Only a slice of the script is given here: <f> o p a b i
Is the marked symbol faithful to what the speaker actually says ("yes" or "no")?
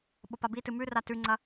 no